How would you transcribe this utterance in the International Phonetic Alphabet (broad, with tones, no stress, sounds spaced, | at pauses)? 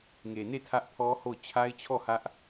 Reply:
ŋ e˨ n e˦˨ tʰ ä˦ ʔ pʰ ɔ˦ h o˦˨ ʊ̯ t͡ɕʰ a˦ ɪ̯ t͡ɕʰ ɔ˦˨ h ä˦ ʔ